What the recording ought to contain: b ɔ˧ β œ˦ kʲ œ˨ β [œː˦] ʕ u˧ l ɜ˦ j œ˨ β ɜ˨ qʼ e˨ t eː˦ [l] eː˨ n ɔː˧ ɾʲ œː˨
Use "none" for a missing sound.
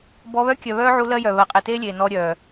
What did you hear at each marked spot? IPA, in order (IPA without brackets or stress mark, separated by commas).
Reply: œː˦, lʲ